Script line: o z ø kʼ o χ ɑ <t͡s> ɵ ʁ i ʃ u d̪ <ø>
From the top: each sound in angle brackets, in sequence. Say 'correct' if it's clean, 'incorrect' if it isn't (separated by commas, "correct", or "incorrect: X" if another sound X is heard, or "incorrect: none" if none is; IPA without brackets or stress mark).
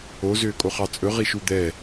incorrect: t͡sʼ, incorrect: ɛ